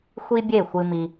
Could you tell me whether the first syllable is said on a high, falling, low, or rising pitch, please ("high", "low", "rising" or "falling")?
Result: high